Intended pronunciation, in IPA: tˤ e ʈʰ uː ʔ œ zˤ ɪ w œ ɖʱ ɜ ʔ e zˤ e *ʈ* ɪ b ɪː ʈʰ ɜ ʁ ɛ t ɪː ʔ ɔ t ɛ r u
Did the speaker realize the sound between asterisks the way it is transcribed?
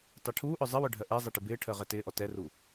yes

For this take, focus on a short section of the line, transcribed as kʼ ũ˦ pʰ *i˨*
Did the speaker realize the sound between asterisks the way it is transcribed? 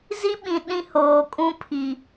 yes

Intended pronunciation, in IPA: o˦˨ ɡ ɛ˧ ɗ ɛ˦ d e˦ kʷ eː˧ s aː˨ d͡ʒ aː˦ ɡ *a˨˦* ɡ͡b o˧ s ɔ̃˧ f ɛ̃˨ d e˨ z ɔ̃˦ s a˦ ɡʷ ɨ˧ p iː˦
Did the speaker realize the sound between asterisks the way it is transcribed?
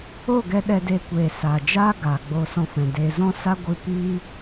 no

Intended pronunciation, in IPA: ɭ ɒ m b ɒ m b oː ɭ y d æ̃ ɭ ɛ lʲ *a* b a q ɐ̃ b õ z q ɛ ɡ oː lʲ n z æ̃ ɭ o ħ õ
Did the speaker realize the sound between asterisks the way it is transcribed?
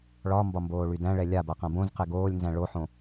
yes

